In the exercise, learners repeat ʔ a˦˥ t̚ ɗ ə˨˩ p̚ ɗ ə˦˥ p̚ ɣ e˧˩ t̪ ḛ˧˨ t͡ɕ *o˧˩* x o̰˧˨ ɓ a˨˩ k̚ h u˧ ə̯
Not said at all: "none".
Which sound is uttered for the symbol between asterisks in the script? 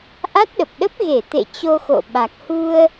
o˧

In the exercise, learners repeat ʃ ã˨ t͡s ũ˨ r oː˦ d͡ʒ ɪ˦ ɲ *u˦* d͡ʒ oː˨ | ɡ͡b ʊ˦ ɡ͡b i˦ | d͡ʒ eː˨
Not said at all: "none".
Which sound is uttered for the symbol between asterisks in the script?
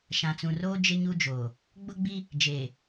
u˦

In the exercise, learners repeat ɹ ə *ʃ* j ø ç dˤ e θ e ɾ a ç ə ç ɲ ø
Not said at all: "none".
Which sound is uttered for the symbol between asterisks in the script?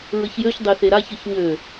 ç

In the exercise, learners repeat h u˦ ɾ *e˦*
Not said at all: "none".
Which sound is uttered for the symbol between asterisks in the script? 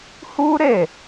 e˦˨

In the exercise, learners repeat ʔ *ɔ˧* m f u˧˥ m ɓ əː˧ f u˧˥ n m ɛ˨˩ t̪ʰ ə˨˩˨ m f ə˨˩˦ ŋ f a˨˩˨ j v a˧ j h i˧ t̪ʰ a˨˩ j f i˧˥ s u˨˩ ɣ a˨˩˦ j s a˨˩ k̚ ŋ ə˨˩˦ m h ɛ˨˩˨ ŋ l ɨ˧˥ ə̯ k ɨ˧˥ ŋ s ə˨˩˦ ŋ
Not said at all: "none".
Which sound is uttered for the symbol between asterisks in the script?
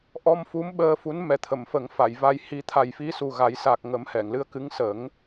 ɔ˧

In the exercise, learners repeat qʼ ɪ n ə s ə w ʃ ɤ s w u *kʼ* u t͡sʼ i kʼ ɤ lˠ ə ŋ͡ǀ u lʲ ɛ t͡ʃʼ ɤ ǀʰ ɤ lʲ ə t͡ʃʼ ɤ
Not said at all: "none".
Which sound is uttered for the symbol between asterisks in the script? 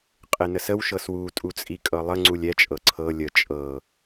tʼ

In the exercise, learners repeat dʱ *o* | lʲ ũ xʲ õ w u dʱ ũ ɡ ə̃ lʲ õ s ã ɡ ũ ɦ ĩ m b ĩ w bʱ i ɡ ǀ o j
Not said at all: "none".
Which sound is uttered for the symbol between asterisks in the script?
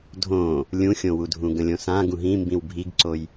õ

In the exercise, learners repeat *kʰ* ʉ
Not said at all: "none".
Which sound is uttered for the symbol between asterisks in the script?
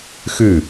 x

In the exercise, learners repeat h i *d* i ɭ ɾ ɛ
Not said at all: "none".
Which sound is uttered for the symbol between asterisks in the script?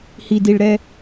d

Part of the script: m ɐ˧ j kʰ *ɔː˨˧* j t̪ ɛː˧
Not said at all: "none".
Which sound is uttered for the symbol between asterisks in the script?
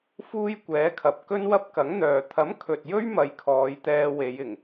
ɔː˨˧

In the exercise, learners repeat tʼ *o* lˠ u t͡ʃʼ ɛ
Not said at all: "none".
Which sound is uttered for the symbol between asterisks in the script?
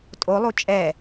o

